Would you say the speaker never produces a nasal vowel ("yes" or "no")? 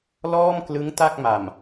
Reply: yes